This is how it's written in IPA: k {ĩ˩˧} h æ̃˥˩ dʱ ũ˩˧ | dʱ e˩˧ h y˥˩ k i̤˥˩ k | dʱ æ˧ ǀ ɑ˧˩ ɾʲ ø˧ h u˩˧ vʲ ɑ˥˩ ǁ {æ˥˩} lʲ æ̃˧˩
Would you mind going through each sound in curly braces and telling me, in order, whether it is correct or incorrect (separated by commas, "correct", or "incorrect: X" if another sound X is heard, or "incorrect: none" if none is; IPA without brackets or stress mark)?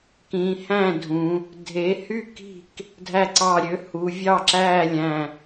correct, incorrect: æː˥˩